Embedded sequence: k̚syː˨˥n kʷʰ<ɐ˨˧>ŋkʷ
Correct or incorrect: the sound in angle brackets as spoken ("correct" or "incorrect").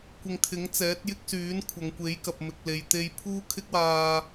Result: correct